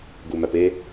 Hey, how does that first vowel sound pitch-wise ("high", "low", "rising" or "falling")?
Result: low